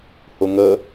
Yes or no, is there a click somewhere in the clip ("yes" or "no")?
no